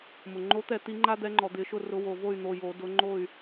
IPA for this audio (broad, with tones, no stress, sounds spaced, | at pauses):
m ʊ˩ ŋ͡ǃ o˨˦ t̪ ɛ˧˩˧ t̪ i˨˦ ŋ͡ǃ a˦ d̪ ɛ˨˦ ŋ͡ǃ ɔ˩ d̪ ɪ˧˩˧ ʃ ʊ˦˨ r ʊ˨˦ w o˩ v o˦˨ y̯ n̪ o˩˧˩ j o˧˩˧ d ʊ˨˦ ŋ͡ǃ o˦˨ y̯